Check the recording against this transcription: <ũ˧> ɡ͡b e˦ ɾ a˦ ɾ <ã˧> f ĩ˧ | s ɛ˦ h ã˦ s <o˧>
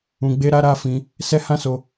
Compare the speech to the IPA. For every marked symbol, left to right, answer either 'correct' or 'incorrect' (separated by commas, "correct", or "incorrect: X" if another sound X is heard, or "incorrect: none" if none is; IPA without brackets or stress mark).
correct, incorrect: a˧, correct